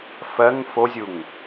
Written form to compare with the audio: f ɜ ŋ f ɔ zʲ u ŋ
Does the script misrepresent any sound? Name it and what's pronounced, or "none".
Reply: ɔ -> o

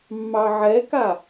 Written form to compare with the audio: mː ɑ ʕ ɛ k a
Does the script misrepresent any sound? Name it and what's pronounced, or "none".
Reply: none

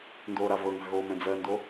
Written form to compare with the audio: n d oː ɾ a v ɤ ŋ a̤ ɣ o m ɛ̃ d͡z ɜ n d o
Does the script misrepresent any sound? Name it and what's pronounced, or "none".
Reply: none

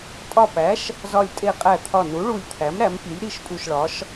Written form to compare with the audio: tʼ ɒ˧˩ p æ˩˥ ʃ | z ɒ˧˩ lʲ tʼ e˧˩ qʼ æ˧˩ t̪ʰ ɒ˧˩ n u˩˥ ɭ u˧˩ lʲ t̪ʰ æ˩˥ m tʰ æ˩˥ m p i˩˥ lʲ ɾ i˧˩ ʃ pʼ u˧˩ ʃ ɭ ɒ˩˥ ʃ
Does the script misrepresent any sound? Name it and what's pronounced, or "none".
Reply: tʰ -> ɾ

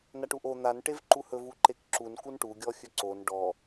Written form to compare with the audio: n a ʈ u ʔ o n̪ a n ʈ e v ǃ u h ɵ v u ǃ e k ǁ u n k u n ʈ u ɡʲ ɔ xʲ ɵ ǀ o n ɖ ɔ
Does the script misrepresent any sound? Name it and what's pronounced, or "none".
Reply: none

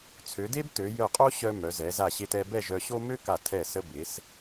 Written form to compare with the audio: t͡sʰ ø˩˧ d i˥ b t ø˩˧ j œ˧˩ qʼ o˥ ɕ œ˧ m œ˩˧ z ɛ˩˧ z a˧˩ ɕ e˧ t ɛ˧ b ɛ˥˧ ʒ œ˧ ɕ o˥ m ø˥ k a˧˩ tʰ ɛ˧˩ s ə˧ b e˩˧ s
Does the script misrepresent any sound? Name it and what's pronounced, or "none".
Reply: i˥ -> e˥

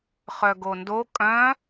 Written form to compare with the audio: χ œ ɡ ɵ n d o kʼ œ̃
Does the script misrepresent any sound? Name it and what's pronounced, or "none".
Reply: ɵ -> o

